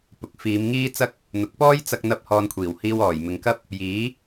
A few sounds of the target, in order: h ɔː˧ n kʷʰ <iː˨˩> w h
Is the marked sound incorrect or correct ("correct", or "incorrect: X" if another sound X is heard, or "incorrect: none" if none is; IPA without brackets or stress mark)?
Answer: correct